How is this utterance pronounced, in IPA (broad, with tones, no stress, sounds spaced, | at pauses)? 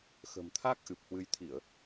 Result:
x ə̤˨˩ m t̪ʰ a˦˥ k̚ ʔ ɨ˨˩ p̚ h w ɨ˧ j t̪ʰ i˧˩˨ ə̯